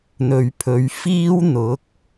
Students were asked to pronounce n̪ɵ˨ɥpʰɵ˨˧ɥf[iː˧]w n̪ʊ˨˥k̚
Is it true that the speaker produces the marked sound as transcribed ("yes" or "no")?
no